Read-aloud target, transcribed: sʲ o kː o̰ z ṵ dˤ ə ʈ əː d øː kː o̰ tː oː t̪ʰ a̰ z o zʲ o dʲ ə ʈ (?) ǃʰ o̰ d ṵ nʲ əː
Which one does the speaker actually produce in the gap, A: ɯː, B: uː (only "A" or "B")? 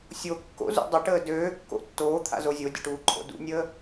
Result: B